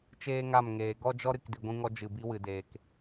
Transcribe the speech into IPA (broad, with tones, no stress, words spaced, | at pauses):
t͡ʃeː˦ŋa˦˨mŋeː˨ ɡɔ˦d͡ʒɔ˦ ɾɨ˨k di˨ɡʷĩ˧ŋɔ˧ d͡ʒɨ˨bi˧wɨ˨deː˨k